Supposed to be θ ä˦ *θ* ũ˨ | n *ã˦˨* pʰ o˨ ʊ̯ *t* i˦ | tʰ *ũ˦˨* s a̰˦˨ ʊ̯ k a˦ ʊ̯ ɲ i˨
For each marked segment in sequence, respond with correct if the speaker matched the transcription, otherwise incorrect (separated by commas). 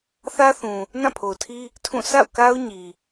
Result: correct, correct, incorrect, correct